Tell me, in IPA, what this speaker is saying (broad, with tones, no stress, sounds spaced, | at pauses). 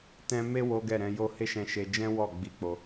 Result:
t ɛ̃˧ m e˦ w o˦ ɡ ɛ˦˨ ɾ ɛ̃˧ j o˧ h e˦ ʃ ɛ̃˧ ʃ e˧ d͡ʒ ɛ̃˦ w ɔ˦˨ ɡ͡b i˧ k͡p o˧